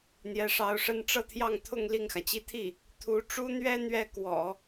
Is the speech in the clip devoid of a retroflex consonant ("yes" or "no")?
no